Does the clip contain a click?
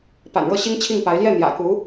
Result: no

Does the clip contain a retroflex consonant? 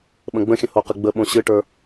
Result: yes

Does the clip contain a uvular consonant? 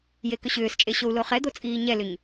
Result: yes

